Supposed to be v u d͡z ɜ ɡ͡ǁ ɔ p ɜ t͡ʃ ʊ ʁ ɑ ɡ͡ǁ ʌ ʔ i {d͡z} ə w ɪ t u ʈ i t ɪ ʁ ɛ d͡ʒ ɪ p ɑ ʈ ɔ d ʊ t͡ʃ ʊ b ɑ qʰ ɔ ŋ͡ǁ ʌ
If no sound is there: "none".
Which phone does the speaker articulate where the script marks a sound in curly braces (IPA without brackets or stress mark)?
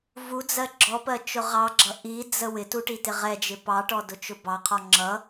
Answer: d͡z